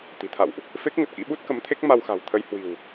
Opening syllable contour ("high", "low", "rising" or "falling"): low